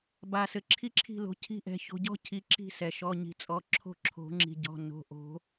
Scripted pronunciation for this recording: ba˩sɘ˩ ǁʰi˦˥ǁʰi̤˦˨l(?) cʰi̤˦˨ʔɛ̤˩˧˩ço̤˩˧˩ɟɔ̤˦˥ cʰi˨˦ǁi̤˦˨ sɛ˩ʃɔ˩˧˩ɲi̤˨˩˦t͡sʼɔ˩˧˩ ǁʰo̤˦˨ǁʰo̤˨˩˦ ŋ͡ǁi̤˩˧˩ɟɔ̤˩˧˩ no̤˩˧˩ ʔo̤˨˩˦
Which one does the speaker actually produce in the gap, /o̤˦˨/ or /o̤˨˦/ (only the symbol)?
o̤˨˦